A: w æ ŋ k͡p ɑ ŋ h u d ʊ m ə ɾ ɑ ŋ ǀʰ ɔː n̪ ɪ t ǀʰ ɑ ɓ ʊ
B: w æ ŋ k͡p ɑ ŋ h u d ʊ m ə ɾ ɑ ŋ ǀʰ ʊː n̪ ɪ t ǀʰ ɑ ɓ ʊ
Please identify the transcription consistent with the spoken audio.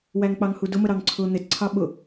B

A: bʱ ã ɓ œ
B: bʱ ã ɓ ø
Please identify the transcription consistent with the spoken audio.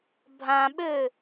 B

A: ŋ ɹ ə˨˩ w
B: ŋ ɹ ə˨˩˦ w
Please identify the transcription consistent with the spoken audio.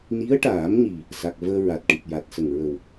A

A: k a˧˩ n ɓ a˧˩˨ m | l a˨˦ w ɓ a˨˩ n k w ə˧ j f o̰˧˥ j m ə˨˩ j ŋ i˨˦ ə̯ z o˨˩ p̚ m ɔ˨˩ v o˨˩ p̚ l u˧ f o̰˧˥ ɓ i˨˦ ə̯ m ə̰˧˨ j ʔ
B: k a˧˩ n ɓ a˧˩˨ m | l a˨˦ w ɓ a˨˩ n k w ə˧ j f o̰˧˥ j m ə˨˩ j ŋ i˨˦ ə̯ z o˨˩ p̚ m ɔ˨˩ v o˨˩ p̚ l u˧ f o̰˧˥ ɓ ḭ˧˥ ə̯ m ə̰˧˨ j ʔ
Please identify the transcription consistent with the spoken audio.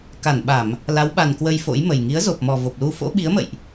A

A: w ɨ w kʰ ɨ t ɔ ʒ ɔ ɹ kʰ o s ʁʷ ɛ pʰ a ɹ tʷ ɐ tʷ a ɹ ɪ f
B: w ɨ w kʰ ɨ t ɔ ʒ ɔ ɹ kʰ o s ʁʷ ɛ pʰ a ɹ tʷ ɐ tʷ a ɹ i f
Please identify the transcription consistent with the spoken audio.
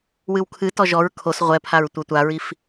B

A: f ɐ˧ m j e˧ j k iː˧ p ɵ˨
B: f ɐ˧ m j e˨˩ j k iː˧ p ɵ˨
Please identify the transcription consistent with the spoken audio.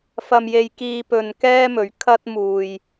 A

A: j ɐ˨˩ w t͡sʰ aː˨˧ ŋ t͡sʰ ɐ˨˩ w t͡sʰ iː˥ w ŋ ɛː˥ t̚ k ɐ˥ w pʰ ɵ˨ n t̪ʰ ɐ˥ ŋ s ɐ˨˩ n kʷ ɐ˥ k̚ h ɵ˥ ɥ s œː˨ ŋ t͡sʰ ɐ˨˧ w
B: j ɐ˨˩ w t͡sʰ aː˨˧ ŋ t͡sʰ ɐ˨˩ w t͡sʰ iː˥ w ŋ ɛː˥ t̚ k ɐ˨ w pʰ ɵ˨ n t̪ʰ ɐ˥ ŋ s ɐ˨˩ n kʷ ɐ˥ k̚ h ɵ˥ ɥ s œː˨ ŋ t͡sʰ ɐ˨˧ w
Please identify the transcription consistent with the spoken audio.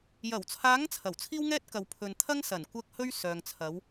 B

